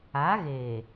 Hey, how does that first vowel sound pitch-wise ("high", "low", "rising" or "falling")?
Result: rising